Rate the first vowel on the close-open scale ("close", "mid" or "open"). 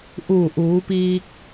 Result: close